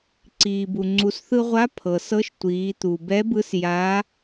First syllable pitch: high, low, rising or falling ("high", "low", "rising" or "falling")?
low